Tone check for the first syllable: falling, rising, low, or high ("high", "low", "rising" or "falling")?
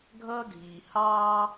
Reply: high